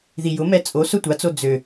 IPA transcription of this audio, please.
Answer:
ð i j ʊ m ɛ t͡sʼ o s ʊ tʷ a t͡s o d͡z ø

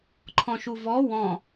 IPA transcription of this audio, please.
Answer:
ǃʰ ɔ̃ ʃ u v ɔ w ɔ̃

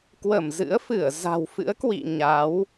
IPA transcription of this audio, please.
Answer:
k w ə˧˩ m z ɨ̰˧˥ ə̯ f ɨ˧˩ ə̯ z a̤˨˩ w f ɨ̰˧˥ ə̯ k w ḭ˧˨ ɲ a˨˦ w

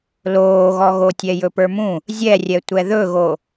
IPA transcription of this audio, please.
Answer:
l oː ɣ ɔ ɣ o tʲ ɛ j ɵ p ə˞ m ũ | zʲ ɛ rʲ ɛ tʷ ɛ ð ɵ ɣ o

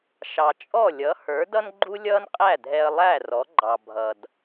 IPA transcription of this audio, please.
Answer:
ʃ ɑ˩ t͡ʃʼ ɔ˥˩ lʲ ʌ˩˥ h ə˞˩˥ d ʌ˥ n ɡ͡ǃ u˥ lʲ ʌː˥ n qʼ æ˥˩ dʱ ɛ˧ ə̯ lˠ æ˥˩ r ɔ˩˥ ɡ͡ǃ ɑ˩ bʱ ʌ˩ d

